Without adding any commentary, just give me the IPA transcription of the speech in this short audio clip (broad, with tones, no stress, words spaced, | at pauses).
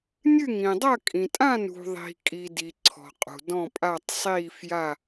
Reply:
nʲɨ˥˧ŋĩ˨ dˤɐ˥˧ kʼĩ˨tʼã˥˧ nṳ˨ðˤi̤˨kʼi˨ di˨ ǀʰɔ̤˨qʼṳ˨ dɔ̃˥˧pʼa˥˧tˤ sˤiː˥˧fja˥˧